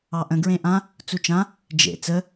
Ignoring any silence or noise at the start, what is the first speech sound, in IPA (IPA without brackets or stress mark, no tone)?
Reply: ɑ